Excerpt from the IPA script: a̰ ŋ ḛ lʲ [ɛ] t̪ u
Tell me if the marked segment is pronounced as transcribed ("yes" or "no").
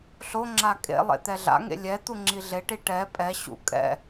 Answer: yes